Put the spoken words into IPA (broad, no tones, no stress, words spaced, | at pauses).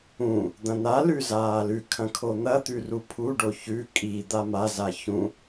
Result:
ũ | d̪ɐ̃n̪alʉ zaːlʉkʰɐ̃ kʰon̪ɐt̪ʉ rupʰuɖo çʉ kʼid̪a maza çũ